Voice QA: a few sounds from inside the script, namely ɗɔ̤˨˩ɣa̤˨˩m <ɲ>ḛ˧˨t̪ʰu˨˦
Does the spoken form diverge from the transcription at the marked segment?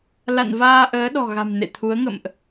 yes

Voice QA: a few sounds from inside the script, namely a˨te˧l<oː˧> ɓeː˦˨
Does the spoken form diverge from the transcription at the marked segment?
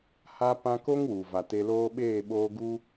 yes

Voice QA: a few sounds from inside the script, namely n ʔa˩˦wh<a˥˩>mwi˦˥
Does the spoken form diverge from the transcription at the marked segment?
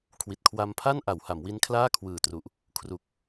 yes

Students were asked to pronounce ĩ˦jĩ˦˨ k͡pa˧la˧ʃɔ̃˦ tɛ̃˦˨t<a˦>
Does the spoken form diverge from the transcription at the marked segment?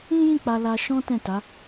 yes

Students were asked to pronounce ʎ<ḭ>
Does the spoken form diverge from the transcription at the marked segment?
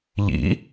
no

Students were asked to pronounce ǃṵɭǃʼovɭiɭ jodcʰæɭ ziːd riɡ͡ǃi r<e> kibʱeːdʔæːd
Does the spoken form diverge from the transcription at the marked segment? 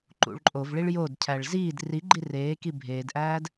yes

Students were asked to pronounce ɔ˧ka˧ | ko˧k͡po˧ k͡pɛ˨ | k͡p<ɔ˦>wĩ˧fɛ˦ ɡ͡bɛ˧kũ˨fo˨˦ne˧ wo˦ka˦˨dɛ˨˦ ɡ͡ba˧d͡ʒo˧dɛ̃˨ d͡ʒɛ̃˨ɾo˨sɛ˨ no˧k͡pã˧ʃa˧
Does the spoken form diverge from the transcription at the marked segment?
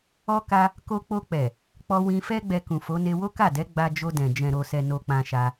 yes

